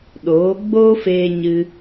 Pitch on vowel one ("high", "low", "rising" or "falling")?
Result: rising